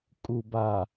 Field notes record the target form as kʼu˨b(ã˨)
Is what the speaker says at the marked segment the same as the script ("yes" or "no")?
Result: no